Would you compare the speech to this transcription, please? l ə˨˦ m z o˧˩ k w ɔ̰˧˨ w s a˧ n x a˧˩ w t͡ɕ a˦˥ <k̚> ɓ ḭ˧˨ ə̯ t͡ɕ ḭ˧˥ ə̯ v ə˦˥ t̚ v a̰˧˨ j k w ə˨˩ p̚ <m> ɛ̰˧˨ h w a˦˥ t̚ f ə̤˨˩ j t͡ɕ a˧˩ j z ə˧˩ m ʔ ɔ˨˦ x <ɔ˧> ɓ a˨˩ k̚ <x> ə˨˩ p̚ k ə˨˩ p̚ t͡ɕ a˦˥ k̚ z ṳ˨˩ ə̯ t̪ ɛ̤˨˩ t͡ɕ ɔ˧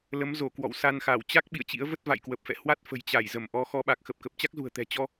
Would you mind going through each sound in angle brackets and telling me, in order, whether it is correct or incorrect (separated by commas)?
correct, incorrect, correct, correct